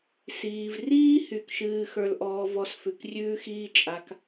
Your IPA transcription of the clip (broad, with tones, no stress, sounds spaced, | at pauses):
s iː˨ v r iː˦ h y˦˨ k ʃ ɨː˦ x ə˞˧ l ʔ ɔː˧ v ɔ˧ s f ʉ˨ k rʲ ʉː˦ x iː˦ t͡ʃʼ a˧ k